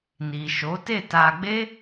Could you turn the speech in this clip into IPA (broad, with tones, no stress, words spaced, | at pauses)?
ni˨ʃo˨˦ te˦˨ta˧ ɡ͡be˦